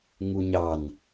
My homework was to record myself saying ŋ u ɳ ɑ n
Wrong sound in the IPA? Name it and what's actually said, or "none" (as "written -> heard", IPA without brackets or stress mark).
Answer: ɳ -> ɲ